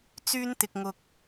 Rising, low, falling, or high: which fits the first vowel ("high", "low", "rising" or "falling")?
high